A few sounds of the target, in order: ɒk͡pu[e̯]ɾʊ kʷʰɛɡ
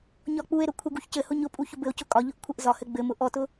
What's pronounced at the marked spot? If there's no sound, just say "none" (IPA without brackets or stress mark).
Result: e̯